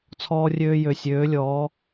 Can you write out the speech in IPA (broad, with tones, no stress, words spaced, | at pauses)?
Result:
t͡sʰɔː˧rʲøː˧jø˨ sʲøː˨˦lʲɔː˨˦